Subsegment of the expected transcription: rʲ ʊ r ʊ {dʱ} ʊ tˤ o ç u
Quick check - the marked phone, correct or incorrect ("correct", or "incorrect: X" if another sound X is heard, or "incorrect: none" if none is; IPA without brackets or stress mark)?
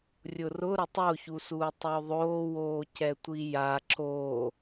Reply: incorrect: ɾ